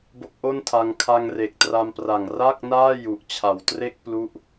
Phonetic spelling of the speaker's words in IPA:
b o˦˥ k̚ ʔ o˥˩ n tʰ a˧ ŋ kʰ a˧ ŋ r e˨˩ k̚ t r a˧ m p r a˨˩ ŋ r a˥˩ k̚ n aː˥˩ j u˨˩ ʔ t͡ɕʰ a˨˩ w t r e˥˩ k̚ p l u˦˥ ʔ

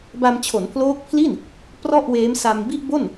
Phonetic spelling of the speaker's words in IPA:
b a˧ m t͡ɕʰ o˩˦ n pʰ l oː˦˥ k̚ pʰ l i˥˩ n | p r ɔ˥˩ ʔ w eː˦˥ m s a˧ m b i˥˩ ʔ b o˥˩ n

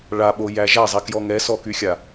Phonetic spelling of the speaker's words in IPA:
ɭ a ɓ o j æ ʒ a zˤ ɛ k j ɔ ŋ ɛ s ɔ k y xʲ a

